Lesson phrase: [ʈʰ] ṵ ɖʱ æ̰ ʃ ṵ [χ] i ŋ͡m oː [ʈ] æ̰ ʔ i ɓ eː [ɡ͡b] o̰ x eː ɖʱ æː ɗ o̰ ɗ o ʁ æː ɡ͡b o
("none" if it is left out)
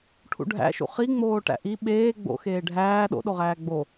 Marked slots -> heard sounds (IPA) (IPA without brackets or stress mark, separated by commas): ʈʰ, χ, ʈ, ɡ͡b